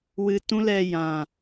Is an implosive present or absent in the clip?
absent